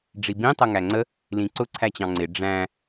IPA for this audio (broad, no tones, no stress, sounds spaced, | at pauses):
ɖ͡ʐ i b ĩ tˤ ʌ ŋ æ ŋ͡ǀ ə | l ĩ ǀ ʊ ǀʰ æ t͡ɕ ɑ̃ ŋ͡ǀ ɪ ɖ͡ʐ æ̃